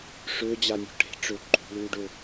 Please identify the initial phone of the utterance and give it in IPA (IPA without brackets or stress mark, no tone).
ʂ